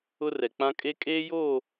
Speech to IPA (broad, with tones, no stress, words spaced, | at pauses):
ʊ˦rɛ˨k͡pã˦ kʼe˦ kʼeː˦joː˦˨